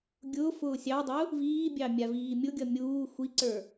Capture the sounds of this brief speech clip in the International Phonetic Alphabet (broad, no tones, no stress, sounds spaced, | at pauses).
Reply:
ɡʲ ʊ f ʊː sʲ ɑ dˤ ʊ | v iː bʲ ɑ mʲ a v iː mʲ ʊ ɡʲ ʌ mʲ uː xʷ i ǀ ə˞